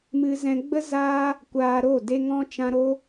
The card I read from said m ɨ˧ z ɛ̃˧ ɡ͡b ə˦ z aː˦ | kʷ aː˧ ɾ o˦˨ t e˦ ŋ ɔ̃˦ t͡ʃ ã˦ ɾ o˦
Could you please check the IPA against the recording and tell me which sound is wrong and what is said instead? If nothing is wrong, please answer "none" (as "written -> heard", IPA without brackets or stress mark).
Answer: t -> d